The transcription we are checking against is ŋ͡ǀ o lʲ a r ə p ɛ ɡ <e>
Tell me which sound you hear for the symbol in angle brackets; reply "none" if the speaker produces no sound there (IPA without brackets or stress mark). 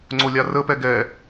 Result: ɛ